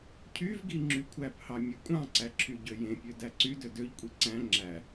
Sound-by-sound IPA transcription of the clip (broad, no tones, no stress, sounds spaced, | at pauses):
cʰ y v ɡ i ŋ͡ǁ y kʷʰ æ p h ɑ mʲ e kʷʼ ɑ̃ ǀ æ ǁʰ y ɟ ø j ẽ pʲ ø d æ ǀ y d ø d ø ʎ kʷʼ i ǀ æ̃ ŋ͡ǁ æ